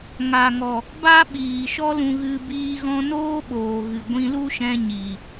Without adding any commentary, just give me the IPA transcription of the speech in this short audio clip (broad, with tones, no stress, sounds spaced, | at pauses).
ŋ a˨ ŋ ɔ˨ | b a˦ ɓ iː˨ ʃ ɔ˧ l ũ˨ ɣ ɨ˨ b iː˧ ɣ ɔ̃˧ n oː˦ ɓ oː˨ ɣ ɨ˨ ɡʷ ĩ˧ l u˦ ʃ ɛ̃˧ ɲ i˨